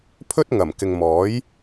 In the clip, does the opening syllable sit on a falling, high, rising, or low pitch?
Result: high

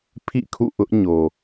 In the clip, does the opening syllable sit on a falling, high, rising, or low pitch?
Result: falling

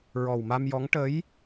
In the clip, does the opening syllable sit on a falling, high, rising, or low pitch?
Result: low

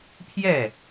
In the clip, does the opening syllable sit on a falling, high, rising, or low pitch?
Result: falling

